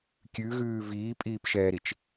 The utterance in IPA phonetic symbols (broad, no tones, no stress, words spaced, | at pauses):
kʲʉɣʉː viːpʼiːpʃɛːɾit͡ʃ